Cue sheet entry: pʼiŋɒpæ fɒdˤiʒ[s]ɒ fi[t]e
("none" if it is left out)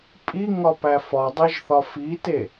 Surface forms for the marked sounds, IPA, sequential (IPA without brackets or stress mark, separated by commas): θ, t